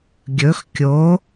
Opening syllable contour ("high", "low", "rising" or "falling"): rising